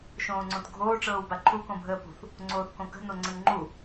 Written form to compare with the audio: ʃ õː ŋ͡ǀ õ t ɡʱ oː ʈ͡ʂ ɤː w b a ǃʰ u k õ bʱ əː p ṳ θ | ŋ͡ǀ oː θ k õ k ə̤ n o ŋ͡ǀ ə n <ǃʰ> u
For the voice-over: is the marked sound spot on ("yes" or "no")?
no